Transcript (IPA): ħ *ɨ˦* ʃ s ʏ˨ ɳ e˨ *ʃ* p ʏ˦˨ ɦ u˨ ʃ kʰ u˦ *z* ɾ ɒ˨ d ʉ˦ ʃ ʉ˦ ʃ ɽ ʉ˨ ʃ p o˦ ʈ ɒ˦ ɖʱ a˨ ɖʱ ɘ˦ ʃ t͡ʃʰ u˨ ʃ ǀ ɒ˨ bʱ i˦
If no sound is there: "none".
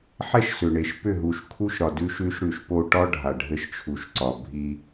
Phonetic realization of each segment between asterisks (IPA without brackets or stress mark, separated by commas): ɛ˦, ʃ, ʃ